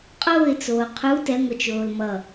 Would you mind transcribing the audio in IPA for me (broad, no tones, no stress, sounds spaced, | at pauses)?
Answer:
qʼ oː ɪ̯ t͡s oː qʰ u t ɛ ŋʷ ʌ t͡ʃ oː l m ʌ